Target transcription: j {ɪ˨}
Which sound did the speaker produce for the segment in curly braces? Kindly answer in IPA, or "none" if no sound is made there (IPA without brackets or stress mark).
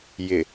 ɪ˨